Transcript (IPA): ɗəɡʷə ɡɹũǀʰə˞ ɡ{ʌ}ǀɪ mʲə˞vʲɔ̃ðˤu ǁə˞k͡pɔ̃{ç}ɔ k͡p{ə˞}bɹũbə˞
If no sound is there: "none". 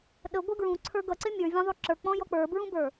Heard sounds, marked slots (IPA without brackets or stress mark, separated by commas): ʌ, j, ə˞